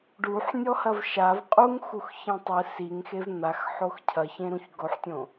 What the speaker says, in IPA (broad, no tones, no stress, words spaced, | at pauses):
ɖuħnʲɔhɐv ʃav qʼuŋ xuxçẽtˤɨ siŋxev n̪axħox cʰɐçẽɾũç ɡoħtʲõ